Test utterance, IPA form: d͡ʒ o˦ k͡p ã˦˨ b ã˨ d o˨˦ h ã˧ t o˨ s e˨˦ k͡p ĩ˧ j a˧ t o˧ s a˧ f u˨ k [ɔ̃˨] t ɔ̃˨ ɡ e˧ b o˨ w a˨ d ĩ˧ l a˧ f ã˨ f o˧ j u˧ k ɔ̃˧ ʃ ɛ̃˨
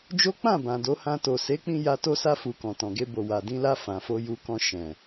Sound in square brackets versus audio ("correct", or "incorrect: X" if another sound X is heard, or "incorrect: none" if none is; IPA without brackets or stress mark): correct